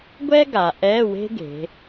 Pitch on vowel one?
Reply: high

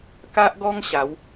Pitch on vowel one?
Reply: high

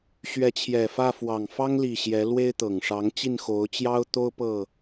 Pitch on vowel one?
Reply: rising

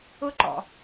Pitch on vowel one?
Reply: high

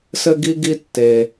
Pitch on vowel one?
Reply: high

